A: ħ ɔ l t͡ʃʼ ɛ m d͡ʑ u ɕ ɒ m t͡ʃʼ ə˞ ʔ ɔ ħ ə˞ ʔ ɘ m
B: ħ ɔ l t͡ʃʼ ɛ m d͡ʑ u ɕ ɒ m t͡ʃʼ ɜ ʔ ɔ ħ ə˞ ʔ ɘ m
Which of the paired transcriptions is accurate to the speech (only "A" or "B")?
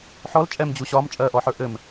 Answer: B